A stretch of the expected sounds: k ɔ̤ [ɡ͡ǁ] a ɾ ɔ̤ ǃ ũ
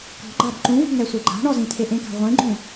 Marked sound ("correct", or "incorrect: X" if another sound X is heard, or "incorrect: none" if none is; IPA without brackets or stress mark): incorrect: ɡ͡ǃ